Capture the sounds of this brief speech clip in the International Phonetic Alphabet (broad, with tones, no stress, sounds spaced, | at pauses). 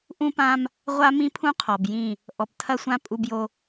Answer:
ʔ ũ˦ p ã˦ m | ʁʷ a˦ m ĩ˦ pʰ ũ˦ qʰ ɔ˨ b j ĩ˦˨ | ʔ ɔ˨ p tʰ ɐ˦ sʷ ã˦ pʼ u˦ b j o˦